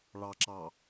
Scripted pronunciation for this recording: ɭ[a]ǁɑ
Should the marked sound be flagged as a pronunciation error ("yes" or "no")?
yes